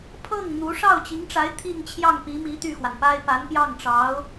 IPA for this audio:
pʰ ɤ˥˩ ŋ n̪ u˧˥ ʂ ɑ˥˩ ʊ̯ t͡ɕ i˧˥ ŋ ʈ͡ʂ a˧˥ ɪ̯ t̪ʰ i˥˧ ŋ t͡ɕʰ j ɑ˥˩ ŋ p i˧˥ m i˧˥ t̪ y˥˩ x w a˩ n p a˥ ɪ̯ p a˧˥ n p j ɑ˥˩ ŋ ʈ͡ʂ ɑ˧˥ ʊ̯

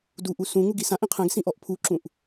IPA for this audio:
d u ʔ u s ũ ŋ u ɡ i s ã ʔ ĩ qʰ ɛ̃ ɡ s ĩ ʔ ɔ ʔ pʰ u ǁ ũ ʔ

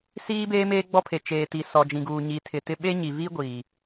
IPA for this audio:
s iː˦ b eː˦ m eː˦ ɡ͡b ɔ˦ pʰ e˨ t͡ʃ eː˨ t i˨ s ɔ˨ d͡ʒ ĩ˨ ɡ uː˨ ɲ i˨ tʰ ɪ˨ t ɪ˦ ɓ e˦ ɲ i˨ β i˦ ɡʷ iː˨

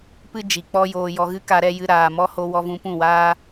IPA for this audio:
p ɨ˦ d͡ʒ i˨ k͡p ɔ˦ j oː˧ j ɔ˨ ɣ ɨ˧ k a˧ ɾ ɛ˦ j ɨ˧ ɾ aː˨ m ɔ˧ h o˧ w ɔ˧ v ũ˧ p ũ˦˨ w aː˦

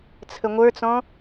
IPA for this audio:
t͡sʰ ə ŋʷ ə˞ t͡s ɔ̃

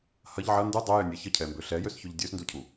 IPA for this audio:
h ɐ ʎ ʕ ɐ n d u dˤ ø j ø nʲ ɛ ç ə cʰ ɛ m b ø ɬ ɛ j ø s ç ø ʎ dʲ ø s n d u cʰ u

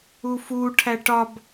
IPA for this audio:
u f u ʈʰ æ ʈ ɒ b

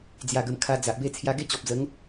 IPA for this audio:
d͡z j a˨˩ ɡ ə˨˩ m kʰ a˧ d͡z a˨ ʔ b e˥˧ t͡sʰ j a˧ ɡ e˥˧ t͡ɕ ɔ˨ p̚ d͡z ə˨˦ ŋ

